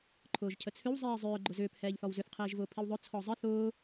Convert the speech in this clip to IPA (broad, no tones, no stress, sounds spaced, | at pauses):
ǃʰ ʊː ʒ cʰ ə t͡sʰ ʏ w zˤ iː zˤ ʏː ɡ͡ǃ ʊ z ʏː p h ɛː ʎ θ ɔ w z ʏ θ qʰ iː ʒ v ʊː pʰ i w ðˤ ʊ t͡sʰ ɔ zˤ ɘ θ ʊː